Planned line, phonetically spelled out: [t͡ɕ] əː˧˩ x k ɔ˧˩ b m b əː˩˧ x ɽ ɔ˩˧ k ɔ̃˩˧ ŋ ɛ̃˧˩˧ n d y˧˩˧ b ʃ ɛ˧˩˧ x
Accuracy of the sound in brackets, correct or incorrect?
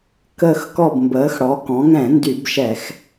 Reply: incorrect